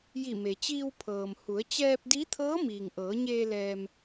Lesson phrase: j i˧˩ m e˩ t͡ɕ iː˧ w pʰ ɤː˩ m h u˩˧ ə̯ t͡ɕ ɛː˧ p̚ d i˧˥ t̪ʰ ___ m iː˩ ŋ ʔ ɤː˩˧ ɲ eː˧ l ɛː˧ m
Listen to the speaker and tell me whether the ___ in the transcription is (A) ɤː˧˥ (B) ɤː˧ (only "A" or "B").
A